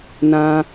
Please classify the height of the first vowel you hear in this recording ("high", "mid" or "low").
low